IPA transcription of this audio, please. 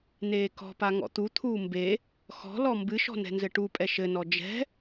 n eː k ɔ̤ p a ŋ ɔ̰ t̪ u t̪ʰ uː m b e | x ɔ̤ l ɔ m b ɨ ʃ ɔ̤ n ɛ̤ n z ɘ ʈ u pʼ ɛ ʃ ɘ n ɔ d͡ʒ ɛ̤

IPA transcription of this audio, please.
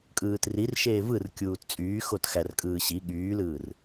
kʼ ɯː t r i r ʃ eː v ɯ r kʲ uː t t͡sʼ yː x o t x æ r kʼ ɯː ɕ i ɠ yː l ɯː r

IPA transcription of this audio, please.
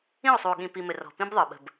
ĩ˦˨ o̯ sˤ u˨ o̯ ɠ ĩ˨ p i˨ m ɘ˨ r ɔ̤˨ p ĩ˦ b ðˤ ɯ˨ ɓ ə̤˨ b

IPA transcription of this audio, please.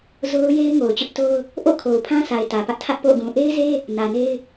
z o˦ ʊ̯ j e˦ ɪ̯ ŋ o˨ ʊ̯ t͡ɕ ʊ˦ ʔ t o˦ ʊ̯ | ʔ o̰˦˨ kʰ o˨ ʊ̯ pʰ ã˦ s a˨ ɪ̯ t ä˨ p ä˦ ʔ tʰ ä˦ ʔ p o̰˦˨ ɡ ũ˨ ʔ e˦ ɪ̯ z e˦ | n ä˨ n e˦ ɪ̯

